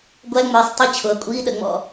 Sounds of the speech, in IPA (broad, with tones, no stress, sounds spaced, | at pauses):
ɡʷ æ˧˥˧ ŋ͡m ə˞˩˧˩ sˤ tˤ ə˧˥˧ t͡ɕʰ ʊ˩˧˩ ɐ̯ kʷʼ iː˧˥˧ ɗ ə˨˩˦ ŋ͡m ɔ̰˨˩˦